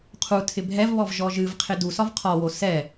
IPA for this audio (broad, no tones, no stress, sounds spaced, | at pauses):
qʰ u tʰ ɪ bʱ ɛ v β ɔ v ʒ ɔ ʒ ɨ v qʰ ɪ d u s ɒ v qʰ ɒ w o s ɛ